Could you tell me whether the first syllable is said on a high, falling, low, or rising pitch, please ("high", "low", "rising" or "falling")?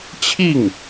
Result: falling